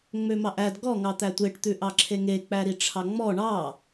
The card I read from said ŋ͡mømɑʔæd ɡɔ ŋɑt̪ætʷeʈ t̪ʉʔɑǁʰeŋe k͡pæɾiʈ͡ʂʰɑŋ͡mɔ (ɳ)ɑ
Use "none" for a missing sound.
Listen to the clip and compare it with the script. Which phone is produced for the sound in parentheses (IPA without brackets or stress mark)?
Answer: ɳ